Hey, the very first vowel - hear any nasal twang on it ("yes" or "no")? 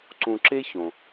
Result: yes